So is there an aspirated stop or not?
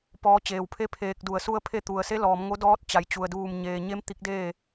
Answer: yes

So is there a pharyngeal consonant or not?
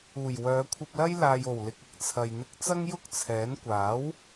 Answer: no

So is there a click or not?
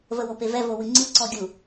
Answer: yes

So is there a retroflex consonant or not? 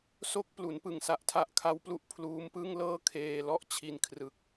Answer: no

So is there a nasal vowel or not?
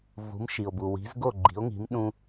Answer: yes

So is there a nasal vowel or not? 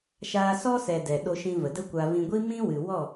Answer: yes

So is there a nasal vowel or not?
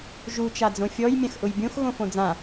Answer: yes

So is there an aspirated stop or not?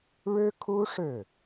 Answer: yes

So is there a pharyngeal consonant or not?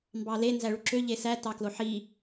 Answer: yes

